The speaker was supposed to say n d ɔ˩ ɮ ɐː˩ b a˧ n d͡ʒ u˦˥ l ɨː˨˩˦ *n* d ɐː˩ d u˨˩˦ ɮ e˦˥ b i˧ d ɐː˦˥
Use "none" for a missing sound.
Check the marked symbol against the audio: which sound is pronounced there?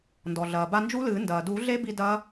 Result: n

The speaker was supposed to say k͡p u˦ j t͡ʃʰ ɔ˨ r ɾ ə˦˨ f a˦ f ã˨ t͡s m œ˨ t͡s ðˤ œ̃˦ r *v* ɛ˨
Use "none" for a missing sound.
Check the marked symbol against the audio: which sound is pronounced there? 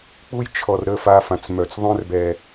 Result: b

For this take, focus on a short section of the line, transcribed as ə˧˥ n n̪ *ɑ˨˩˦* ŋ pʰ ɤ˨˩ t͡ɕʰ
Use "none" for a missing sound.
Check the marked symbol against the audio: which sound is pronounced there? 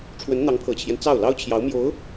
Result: ɑ˧˥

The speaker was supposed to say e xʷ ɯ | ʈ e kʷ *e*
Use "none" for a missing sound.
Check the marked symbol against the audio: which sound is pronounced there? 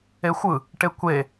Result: e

